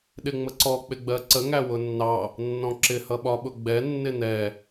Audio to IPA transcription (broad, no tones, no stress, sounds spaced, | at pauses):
ɗ ɪ ŋ͡m ə ǀ ɔ k͡p ɪ ɡ͡b ɜ ǀ ə ŋ æ w ʊ nː ɑ | nː ɔ̃ ǁ ɪ h ʌ ɓ ɒ ɓ ʊ ɡ͡b ɛ nː ɪ n ɛ